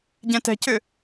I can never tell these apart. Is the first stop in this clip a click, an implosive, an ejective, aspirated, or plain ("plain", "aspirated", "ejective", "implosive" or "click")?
plain